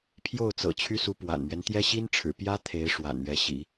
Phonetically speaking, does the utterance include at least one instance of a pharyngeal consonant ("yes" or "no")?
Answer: no